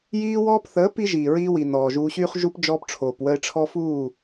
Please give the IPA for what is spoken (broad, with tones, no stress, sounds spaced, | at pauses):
j iː˦ w ɔː˦ p θ əː˨˦ p i˦ ʒ iː˨ ɹ iː˦ w i˨ n ɔː˨ ʒ uː˦ ɕ yː˦ χ ʒ u˦ p d͡ʒ ɔː˦ p ʈ͡ʂʰ oː˨ p w ə˦ ɪ̯ ʈ͡ʂʰ ɔ˦ f uː˦˨